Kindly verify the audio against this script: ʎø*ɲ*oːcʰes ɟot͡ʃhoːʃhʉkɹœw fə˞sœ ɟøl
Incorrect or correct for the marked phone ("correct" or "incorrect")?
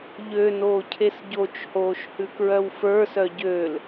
incorrect